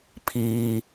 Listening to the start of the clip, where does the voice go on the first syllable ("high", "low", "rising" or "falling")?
low